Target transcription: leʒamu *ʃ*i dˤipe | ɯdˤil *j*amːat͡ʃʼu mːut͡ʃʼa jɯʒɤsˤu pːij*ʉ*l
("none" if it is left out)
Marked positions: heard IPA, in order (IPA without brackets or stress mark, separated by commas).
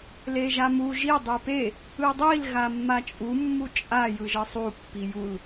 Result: ʒ, ɣ, u